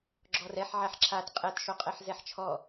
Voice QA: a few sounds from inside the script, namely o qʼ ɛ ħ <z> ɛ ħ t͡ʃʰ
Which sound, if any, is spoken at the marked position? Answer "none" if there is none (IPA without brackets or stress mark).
z